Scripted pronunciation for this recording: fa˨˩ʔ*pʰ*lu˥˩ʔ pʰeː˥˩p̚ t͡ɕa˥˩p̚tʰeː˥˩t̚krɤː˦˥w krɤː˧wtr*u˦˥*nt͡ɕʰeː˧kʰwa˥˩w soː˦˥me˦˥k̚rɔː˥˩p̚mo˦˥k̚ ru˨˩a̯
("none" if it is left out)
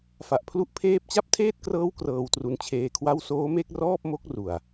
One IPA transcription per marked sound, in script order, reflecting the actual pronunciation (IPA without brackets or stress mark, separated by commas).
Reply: pʰ, u˧